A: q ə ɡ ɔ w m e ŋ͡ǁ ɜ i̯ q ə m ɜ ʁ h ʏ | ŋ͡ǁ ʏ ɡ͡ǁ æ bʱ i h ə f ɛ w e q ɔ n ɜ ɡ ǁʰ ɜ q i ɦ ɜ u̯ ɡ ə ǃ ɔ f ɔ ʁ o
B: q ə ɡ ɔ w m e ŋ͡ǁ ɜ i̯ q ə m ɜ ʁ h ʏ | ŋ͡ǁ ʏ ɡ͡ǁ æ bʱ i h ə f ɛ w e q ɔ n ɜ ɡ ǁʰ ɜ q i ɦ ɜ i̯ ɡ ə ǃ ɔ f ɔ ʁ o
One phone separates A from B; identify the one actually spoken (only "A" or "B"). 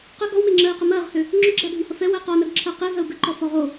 A